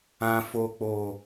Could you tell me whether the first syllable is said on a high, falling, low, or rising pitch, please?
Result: high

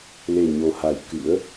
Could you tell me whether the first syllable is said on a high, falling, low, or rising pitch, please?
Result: low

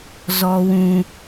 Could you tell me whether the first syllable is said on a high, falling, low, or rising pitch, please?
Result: high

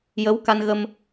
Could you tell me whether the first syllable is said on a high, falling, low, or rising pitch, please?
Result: rising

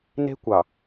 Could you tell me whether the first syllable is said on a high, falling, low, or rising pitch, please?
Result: high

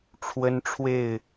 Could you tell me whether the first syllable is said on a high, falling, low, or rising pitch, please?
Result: high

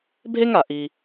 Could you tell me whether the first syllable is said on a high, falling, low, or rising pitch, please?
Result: high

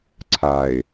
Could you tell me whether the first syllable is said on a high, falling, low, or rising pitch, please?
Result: low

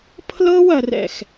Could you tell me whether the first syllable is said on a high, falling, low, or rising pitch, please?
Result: high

